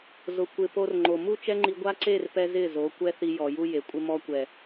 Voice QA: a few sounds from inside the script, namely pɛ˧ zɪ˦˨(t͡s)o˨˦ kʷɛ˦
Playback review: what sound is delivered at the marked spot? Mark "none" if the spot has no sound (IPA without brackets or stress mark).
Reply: z